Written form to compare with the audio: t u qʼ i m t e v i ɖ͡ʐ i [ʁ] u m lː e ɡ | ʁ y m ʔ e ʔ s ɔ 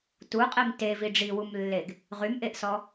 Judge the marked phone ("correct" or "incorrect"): incorrect